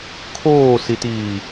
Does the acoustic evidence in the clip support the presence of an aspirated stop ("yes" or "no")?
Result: yes